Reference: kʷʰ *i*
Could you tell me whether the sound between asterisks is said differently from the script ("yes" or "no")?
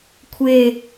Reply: yes